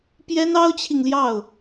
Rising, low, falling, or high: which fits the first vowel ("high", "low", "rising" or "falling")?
high